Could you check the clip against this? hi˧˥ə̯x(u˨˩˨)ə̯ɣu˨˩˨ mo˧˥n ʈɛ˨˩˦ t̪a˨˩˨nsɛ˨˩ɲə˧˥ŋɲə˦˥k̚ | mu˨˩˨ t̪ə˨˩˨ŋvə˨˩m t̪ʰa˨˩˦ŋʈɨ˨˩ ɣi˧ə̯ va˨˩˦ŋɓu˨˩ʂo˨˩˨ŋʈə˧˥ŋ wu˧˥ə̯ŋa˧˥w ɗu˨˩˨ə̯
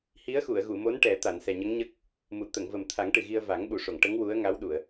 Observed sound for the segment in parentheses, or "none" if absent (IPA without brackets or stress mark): u˨˩˨